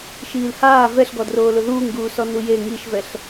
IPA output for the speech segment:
ʃ iː l h aː v ɛ ɬ ɡ ɔ d r oː l ʊ ð uː ŋ ɡ uː s ɔ n u j e ŋ i ʃ v ɛ ɬ

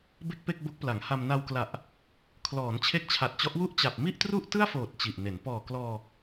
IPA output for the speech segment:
b e˥˩ k̚ p e˥˩ k̚ b o˦˥ k̚ p l a˩˦ ŋ h a˧ m n a˧ w k l a˨˩ ʔ | kʰ l ɔː˩˦ n t͡ɕʰ e˦˥ k̚ t͡ɕʰ a˨˩ t̚ t͡ɕ ɔ˦˥ ʔ w u˥˩ ʔ t͡ɕ a˨˩ p̚ m i˥˩ ʔ t r u˥˩ ʔ t ɯ˥˩ a̯ f oː˨˩ t̚ t͡ɕ i˨˩ ʔ n e˩˦ n p ɔː˨˩ k l ɔː˧

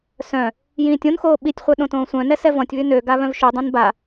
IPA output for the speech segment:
s œ̃ | j ĩː tʲ õ n x oː ɓ i tʲ χʷ œ ɗ õ t õː sʷ œ̃ n ɛ s ɛ v ɔ̃ tʲ β y n ø ɡ a β œ̃ v ʃ y dˤ ĩ n b a

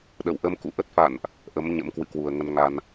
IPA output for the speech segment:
ɗ ə̰˧˨ w ʔ ə˧ m k ṵ˧˨ ʔ ə˦˥ t̚ f a̰˧˨ n ʔ | ʔ ə˨˦ m ɲ ə̰˧˥ m k w ɨ̰˧˨ k w u˨˩ ə̯ ŋ ə˧ n ŋ a˧ n

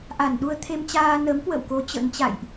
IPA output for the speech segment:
ʔ a˧˩ n ɗ u˧ ə̯ t̪ʰ e˧ m t͡ɕ aː˧ n ə˨˦ m k w ə̰˧˨ w k o˨˦ t͡ɕ ə̰˧˥ n t͡ɕ a̰˧˨ j ʔ

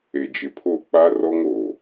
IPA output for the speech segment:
e˨ d͡ʒ ɪ˨ pʰ o˦˨ k͡p a˦ r ɔ˦ ŋ o˨

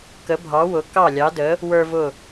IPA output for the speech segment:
k ə˩˧ bʱ ɑ˩˧ w ʊ˩˧ k ɑ˧˩ lʲ ɑ˩˧ d ə˩˧ | w ə˞˧ v ʊ˧˩

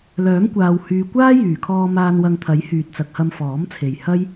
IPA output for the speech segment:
l œː˨˥ m kʷ aː˨ w h yː˨ kʷ aː˥ j yː˨˩ kʰ ɔː˧ m aː˧ n w ɐ˧ ŋ t̪ʰ ɐ˨˥ j h yː˨ t̚ t͡s ɐ˨ k̚ h ɐ˧ m f ɔː˨˥ m t͡sʰ e˨ j h ɐ˥ j

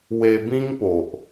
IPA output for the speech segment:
w e˧ b ĩ˦ ŋ p o˨ ʔ

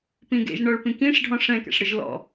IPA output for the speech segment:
p ĩ ɡ ḛ ʒ ɳ ɔ ɭ p ĩ k ĩ ʂ ɖʱ ɔ̃ ʂ ɛ̃ k ɛ̰ ʂ ɽ ɯ ʒ l ɔ̰

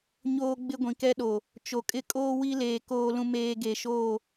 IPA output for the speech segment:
ɲ oː˦ ɡ͡b ɪ˦ ɡʷ ĩ˨ k ɛ˦ ɗ o˨ | t͡ʃ o˨ kʼ ɪ˦ kʼ oː˦ w i˦ l eː˨ k oː˦ l ũ˦ m eː˦ ɡ e˨ ʃ oː˦˨

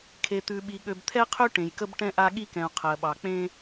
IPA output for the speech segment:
kʰ e˨ t̪ ʉ˨ ɓ i˨ ɠ ø˨ b t̪ʰ ɛ˦ qʰ ø˦ ʈ ẽ˨ j k ə˦ b ʈ ɛ̃˦ ʔ a˦ ɠ i˦ k ɛ̃˨ u̯ qʰ ɜ˨ ɓ ɑ˨ k͡p ẽ˦

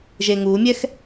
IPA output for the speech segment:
ʒ eː ŋ uː mʲ ɛ x

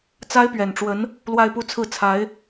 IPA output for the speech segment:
t͡s a˥ ɪ̯ p ɥ ɛ˨˩ n ʈ͡ʂ w ə˧˥ n | l w a˥˧ ɪ̯ p u˥˧ t͡sʰ ɹ̩˥˩ t͡sʰ a˧˥ ɪ̯

